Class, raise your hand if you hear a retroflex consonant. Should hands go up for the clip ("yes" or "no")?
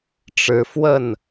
yes